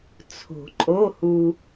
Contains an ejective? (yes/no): yes